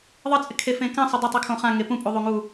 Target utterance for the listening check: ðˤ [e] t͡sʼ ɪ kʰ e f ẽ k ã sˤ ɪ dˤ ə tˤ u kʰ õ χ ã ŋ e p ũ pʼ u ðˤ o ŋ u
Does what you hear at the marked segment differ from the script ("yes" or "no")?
yes